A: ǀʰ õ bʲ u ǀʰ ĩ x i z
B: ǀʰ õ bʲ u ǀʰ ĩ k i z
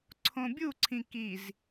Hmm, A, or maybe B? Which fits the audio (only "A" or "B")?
B